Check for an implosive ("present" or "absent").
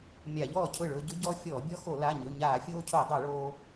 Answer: absent